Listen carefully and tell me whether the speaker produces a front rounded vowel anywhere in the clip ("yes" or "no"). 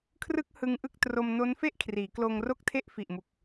no